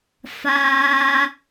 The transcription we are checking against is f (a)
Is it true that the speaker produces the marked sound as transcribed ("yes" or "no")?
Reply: no